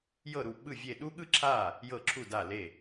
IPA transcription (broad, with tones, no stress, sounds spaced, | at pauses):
j ɤ˥˩ ɾ u˥˩ ɓ ɯ˥˩ vʲ e˥˩ ɗ u˥ ɠ ɯ˥ ǁʰ a˥˩ | j ɤ˥˩ ǁʰ u˥˩ d a˥˩ l e˥˩